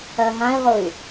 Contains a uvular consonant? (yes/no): yes